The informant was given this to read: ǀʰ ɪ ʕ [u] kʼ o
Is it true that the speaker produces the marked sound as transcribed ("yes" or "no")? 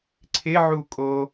yes